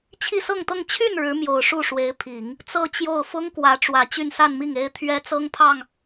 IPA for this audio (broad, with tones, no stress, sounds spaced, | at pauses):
t͡ɕʰ i˥˧ s ɤ˥˧ ŋ t̪ ɤ˥˧ ŋ t͡ɕʰ y˥˩ n ɻ ɻ̩˧˥ m j o˨˩ ʊ̯ ʂ u˥˩ ʂ w e˧˥ ɪ̯ pʰ i˨˩˦ ŋ | t͡s ɤ˥˧ t͡ɕ j o˥˩ ʊ̯ f ʊ˥ ŋ k w ä˧˥ ʈ͡ʂ w ä˨˩ t͡ɕ y˥˧ n s a˥˧ n m i˥˩ ŋ e˥ ɪ̯ t̪ʰ ɥ ɛ˥ t͡s ɤ˥ ŋ pʰ ɑ˥˩ ŋ